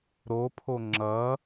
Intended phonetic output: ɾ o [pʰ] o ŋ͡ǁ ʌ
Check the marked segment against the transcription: correct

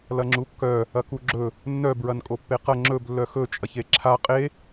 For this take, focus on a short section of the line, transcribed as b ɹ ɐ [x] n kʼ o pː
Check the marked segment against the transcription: incorrect: none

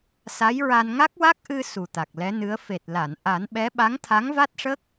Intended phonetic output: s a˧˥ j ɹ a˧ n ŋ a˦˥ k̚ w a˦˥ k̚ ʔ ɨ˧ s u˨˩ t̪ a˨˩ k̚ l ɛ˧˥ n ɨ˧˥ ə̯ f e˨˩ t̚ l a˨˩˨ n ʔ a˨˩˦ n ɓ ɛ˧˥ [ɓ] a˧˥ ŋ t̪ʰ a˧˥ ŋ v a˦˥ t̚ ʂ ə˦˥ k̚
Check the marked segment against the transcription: correct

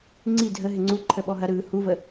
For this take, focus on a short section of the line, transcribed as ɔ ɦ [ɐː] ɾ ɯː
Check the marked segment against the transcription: incorrect: ɐ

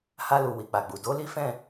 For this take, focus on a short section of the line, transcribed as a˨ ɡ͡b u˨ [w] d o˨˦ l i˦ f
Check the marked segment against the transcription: incorrect: none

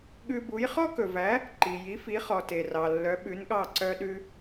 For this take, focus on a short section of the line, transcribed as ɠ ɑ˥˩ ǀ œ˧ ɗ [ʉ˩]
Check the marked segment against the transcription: incorrect: ʉ˧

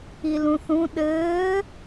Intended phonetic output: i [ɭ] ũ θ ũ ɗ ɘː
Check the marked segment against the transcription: incorrect: l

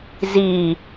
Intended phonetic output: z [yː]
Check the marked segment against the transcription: incorrect: iː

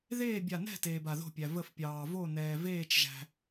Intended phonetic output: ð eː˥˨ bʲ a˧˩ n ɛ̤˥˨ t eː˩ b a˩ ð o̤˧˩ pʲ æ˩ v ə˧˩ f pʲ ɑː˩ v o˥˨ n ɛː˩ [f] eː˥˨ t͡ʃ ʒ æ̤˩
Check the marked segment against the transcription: incorrect: v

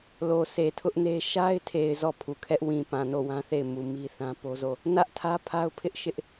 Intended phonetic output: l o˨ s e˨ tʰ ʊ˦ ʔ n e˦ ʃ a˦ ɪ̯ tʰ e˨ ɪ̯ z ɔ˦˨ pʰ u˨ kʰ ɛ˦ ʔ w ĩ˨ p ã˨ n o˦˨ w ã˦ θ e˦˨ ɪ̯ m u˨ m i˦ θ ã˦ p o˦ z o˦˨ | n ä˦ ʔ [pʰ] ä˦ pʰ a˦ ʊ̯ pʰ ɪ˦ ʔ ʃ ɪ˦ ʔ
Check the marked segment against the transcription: incorrect: tʰ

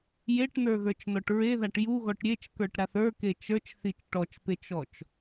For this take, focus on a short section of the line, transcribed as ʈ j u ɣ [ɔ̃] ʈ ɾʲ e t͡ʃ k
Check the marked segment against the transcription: incorrect: ɔ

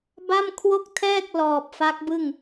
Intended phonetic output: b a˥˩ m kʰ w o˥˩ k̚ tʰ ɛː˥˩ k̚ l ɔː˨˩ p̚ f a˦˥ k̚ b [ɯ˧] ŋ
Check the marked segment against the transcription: incorrect: ɯ˥˩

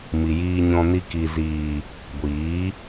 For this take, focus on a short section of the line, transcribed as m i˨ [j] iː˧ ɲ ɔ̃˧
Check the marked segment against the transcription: correct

